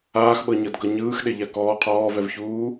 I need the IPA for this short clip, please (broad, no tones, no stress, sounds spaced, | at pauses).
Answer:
aː x ɓ ɤ ɲ ɤ d ɡ ɤ ɲ ɯː x ɗ e ʎ a k ɔː qʰ ɔː v ɛ v ç uː